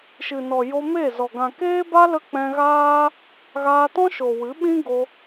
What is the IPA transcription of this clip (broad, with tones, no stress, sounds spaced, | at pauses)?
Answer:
ʃ ɨ˨ n ɔ˨ j o˧ m e˦˨ z ɔ˨ ɡ ã˨ k eː˦ b a˦ l ə˦ k͡p ɛ̃˧ ɣ aː˦ | ɣ aː˧ t ɔ̃˦ ʃ o˨ w ɨ˨˦ ɓ ĩ˦ ɡ o˧